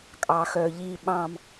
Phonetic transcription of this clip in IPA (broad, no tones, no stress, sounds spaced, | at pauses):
kʼ ɑ x œ ʎ i ɓ ɑ̃ m